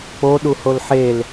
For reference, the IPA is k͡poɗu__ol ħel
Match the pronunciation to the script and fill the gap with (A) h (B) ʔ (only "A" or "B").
A